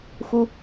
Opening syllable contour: high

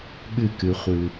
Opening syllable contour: falling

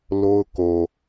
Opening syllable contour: high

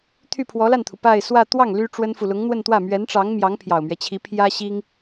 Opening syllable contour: falling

